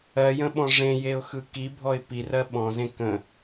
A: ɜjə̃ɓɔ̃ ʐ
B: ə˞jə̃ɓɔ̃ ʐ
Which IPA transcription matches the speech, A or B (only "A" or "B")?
A